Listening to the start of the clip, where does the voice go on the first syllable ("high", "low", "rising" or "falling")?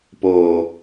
low